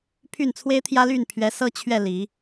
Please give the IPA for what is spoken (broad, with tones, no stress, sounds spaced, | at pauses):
pʰ y˥˨ n t͡sʰ w e˦ ɪ̯ t̪ʰ j ä˦ l y˥˨ n pʰ ɥ ɛ˨˦ s ɤ˦ t͡ɕʰ ɥ ɛ˥˨ l i˨˦